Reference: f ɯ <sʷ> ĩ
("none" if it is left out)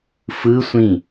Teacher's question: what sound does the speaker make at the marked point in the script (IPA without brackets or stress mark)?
sʷ